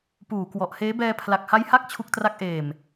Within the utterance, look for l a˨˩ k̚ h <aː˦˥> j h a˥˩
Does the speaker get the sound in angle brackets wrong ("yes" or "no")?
yes